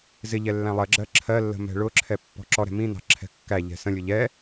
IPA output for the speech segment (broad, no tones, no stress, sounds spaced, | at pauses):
z ɪ ʎ ɛ lː æ̃ lˠ ɜ ɡ͡ǁ ɜ ǁʰ ɜ lː ə̤ m ɛ̤ ɭ ʊ ǁʰ ɛ pː ɔ̤ ǁ ɔ ɾ ɛ̤ m ĩ n ɑ̤ ǁʰ ɛ̤ kː æ ʎ ɛ̤ s ə̃ lʲ ʊ ʎ ɛ